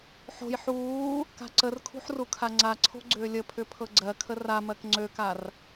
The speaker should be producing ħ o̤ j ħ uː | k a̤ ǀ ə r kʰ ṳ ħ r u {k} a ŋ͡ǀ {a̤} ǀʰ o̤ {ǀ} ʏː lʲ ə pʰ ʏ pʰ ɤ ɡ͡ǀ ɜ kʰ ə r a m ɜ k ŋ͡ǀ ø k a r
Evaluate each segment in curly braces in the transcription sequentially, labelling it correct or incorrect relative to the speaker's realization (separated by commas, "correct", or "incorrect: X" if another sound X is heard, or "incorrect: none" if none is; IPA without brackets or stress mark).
incorrect: kʰ, incorrect: a, incorrect: ɡ͡ǀ